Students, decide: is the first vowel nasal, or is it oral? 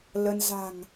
oral